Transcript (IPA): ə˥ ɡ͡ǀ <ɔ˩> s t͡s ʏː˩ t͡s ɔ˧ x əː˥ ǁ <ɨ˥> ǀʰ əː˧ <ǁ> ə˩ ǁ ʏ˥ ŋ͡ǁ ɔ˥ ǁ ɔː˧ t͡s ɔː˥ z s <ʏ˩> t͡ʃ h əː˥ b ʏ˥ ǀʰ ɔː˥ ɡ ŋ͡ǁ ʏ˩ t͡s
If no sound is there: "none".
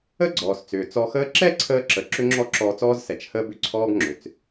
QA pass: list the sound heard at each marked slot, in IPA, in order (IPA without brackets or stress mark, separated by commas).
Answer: ɔː˩, ɛ˥, ǁ, ɛ˩